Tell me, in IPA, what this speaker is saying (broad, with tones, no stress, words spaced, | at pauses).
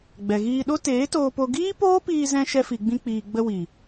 ɡ͡bɛ˨ɣiː˧ɗo˦ teː˨˦toː˧po˧ ɡiː˦poː˦piː˧zɛ̃˧ ʃɛ˧fi˨ɡ͡bĩ˧k͡piː˨ ɡ͡bə˧wi˨